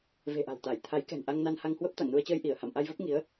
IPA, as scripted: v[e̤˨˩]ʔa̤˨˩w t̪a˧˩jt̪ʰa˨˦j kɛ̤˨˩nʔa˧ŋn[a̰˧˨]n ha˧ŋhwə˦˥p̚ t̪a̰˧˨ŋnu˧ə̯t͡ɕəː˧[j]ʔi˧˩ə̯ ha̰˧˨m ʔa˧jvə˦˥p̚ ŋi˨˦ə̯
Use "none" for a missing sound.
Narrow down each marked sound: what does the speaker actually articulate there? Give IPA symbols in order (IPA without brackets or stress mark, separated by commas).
e̤˨˩, a˧, j